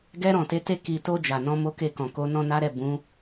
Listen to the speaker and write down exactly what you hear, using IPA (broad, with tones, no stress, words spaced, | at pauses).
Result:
ɡɛ˧ɾɔ̃˨te˨˦ te˧ki˨to˧ d͡ʒa˨nɔ̃˧mo˦ke˦˨ kɔ̃˨ ko˨˦nɔ̃˦na˦ɾɛ˦˨ bũ˨˦